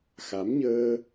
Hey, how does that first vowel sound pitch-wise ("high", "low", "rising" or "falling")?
rising